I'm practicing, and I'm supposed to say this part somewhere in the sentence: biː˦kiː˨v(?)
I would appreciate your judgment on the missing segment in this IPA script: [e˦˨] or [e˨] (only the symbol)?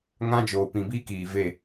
e˦˨